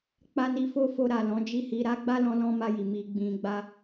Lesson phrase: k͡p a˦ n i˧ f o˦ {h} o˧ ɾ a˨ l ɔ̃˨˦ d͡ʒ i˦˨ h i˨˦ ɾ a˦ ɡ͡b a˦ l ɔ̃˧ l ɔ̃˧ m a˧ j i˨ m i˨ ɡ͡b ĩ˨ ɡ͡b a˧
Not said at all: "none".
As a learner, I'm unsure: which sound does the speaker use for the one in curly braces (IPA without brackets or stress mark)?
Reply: f